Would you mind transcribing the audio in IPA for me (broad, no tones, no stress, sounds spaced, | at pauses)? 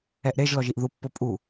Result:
ɛ ʔ ɾ e ʒ l ɔ ʒ i ʔ ð u pː o pʼ u